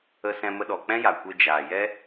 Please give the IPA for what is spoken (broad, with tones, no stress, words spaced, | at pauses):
ə˧sɛ̃˧mə˧ɗɔ˨ k͡pɛ̃˦ja˨kʷe˧ d͡ʒaː˨jɛ˦